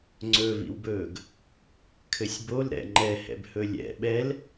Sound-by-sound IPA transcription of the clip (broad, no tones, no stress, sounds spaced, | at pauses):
ŋ͡ǀ ɵ v ḭ w b ɵː ɡ | kʰ ɘ sʲ b o l ɾ ɛ̰ ŋ͡ǃ ɛ h ɛ̰ b h ɵ lʲ ɛ̰ ɓ ɛ l